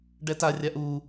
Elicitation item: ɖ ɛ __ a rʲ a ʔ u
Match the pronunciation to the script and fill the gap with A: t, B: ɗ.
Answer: A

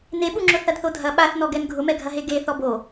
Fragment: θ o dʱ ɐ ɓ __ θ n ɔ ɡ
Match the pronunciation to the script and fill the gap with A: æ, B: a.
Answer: B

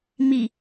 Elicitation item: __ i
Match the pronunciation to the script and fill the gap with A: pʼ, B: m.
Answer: B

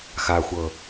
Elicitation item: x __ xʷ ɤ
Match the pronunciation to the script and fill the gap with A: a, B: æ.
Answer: A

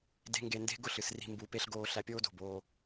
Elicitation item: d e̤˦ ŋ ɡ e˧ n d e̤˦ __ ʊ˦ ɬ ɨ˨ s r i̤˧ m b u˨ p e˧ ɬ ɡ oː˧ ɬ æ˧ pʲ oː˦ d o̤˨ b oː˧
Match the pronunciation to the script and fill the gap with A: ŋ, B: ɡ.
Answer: B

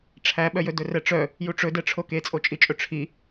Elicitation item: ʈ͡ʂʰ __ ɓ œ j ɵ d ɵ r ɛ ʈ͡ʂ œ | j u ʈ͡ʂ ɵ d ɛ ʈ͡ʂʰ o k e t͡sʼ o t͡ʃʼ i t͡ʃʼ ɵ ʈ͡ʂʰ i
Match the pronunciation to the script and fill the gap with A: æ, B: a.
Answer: A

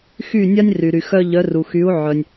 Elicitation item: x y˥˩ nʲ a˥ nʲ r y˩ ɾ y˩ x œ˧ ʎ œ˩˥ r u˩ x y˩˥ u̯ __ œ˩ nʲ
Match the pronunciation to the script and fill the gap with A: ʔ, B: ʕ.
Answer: B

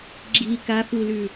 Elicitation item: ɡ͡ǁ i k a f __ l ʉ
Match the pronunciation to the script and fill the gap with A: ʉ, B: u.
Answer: B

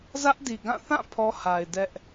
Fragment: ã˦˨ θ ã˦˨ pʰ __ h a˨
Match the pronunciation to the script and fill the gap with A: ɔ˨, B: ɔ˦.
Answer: B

